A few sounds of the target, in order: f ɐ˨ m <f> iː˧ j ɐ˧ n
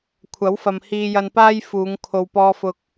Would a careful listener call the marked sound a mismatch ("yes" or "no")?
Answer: yes